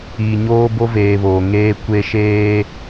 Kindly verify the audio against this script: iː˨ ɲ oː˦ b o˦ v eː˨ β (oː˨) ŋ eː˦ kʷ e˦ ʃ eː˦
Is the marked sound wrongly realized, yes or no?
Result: no